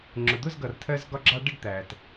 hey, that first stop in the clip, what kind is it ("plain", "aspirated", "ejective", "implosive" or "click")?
click